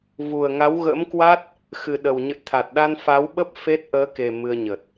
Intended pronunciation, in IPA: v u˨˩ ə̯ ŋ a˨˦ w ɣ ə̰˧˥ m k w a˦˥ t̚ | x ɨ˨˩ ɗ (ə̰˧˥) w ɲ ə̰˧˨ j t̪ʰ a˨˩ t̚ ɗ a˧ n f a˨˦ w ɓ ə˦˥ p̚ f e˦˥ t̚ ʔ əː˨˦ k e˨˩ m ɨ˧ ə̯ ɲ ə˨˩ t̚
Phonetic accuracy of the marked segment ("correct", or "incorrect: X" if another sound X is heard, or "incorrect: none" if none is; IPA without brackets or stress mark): incorrect: ə˨˩